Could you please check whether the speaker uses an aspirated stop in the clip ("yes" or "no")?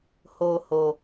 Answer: no